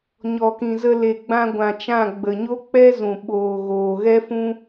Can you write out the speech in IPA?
ɲɔ˨kĩ˨zə˧ le˨ɡ͡bã˧ɡʷã˨ t͡ʃã˦˨ ɡ͡bə˨ɲo˦k͡pɛ˦zũ˨ ɓoː˨ ɣoː˨ɣɛ˦ fũ˧

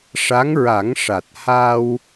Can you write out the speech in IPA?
ʂa˧˥ŋɹa˨˩˦ŋʂa˨˩t̚ ha˧w

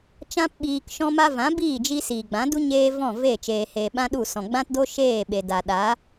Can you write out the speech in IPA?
t͡ʃã˦pɓiː˧k ʃɔ̃˧ma˧ vã˨˦biː˦˨d͡ʒi˧ siː˨ɡ͡bã˨˦du˦ ɲeː˦ vɔ̃˦˨ ve˦˨ t͡ʃeː˨heː˨ ɓã˦ɗu˦˨sɔ̃˨ ɡ͡bã˦tdo˦ ʃeː˦˨ ɓe˨ da˨ ɗa˨˦

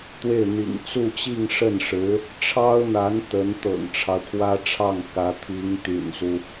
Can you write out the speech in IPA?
t̪we˥˩ɪ̯n̪ḭ˨˩ŋ t͡su˥˧t͡ɕi˥˧ŋ ʂə˥˩nʂɻ̩˧˥ | ʈ͡ʂʰɑ˥ʊ̯n̪a˧˥n t̪ə˧˥n t̪ɤ̰˨˩ŋʈ͡ʂʰɑ˦ʊ̯kʰwä˥ʈ͡ʂʰɑ˥˩ŋ kä˧˥t̪ʰi˧˥ŋt̪y̰˨˩nsu˦

